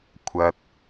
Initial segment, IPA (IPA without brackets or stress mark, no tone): kʷʰ